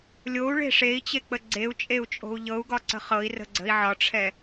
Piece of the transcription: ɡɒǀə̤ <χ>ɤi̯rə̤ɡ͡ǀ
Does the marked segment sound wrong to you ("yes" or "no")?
no